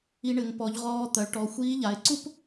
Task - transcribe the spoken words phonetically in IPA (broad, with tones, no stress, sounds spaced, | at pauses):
i˧ ɳ ɘ˩˧ ŋ p ɔ˩˧ ʎ ʁ ɔː˧ t̪ ɐ˩˧ ɭ ʈ ɔ˩˧ xʷ iː˧˥ ʎ a˩˧ ɪ̯ ǀ u˥ p